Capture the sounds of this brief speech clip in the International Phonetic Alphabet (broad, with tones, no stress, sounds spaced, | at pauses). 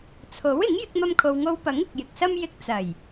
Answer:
t͡sʰ o˨˥ w ɪ˨˥ ŋ j ɪ˥ k̚ m ɐ˥ m kʰ o˧ w ŋ o˧ w p ɐ˨˥ ŋ ɪ˨ k̚ j ɪ˨ k̚ s ɐ˥ m j ɪ˧ k̚ t͡s ɐ˨˩ j